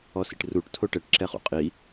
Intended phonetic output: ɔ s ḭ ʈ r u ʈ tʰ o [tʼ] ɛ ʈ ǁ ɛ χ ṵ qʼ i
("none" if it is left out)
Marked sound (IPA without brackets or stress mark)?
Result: ʈ